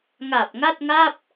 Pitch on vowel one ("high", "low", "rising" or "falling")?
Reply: low